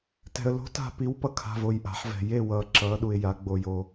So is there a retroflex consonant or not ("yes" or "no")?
no